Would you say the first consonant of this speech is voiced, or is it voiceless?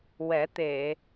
voiced